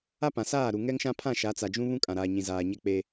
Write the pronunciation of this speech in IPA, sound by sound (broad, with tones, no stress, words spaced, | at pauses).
a˦pã˨ saː˦˨ɾu˨ ŋɛ˦ŋʃã˦ pʰã˦˨ʃa˨˦t͡sa˨d͡ʒũ˦ βũ˦kʼã˨ɾaː˨ɲĩ˨ zaː˨ɲɛ˦k͡pe˦